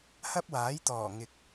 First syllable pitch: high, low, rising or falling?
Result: high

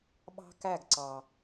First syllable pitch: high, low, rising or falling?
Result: high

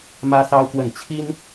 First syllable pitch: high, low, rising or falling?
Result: high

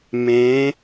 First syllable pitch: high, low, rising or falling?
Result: rising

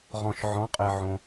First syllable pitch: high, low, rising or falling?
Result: low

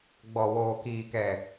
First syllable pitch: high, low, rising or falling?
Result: low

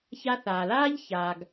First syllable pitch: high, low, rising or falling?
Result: high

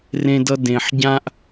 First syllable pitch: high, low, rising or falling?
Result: high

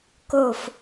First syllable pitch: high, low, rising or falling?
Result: falling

